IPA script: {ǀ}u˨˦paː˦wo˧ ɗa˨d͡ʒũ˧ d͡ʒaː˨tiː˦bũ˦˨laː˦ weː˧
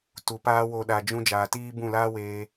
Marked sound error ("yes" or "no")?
yes